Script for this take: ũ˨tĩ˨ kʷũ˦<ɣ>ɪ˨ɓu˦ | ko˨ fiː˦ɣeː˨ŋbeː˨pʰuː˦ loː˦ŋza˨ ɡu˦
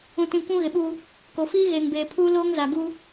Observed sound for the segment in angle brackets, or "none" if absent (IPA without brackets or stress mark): ɣ